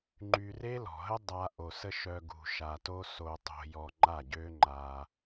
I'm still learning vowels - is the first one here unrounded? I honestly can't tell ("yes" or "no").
no